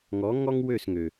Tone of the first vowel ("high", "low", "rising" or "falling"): rising